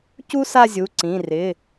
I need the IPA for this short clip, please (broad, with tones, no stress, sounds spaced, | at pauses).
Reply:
c u˥ s a˥˧ zʲ u˩˧˩ ǀ ĩ˩˧˩ r ɪ˩˧˩